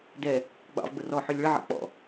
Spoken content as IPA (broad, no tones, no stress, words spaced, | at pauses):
dɛ | ɡ͡bɑ̰vɡ͡bʊ rɔħølʲ ɭəʕɛ̰ k͡pɔ̰